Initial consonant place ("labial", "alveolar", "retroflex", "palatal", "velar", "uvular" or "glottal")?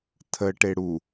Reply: alveolar